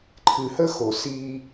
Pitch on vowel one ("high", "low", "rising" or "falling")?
low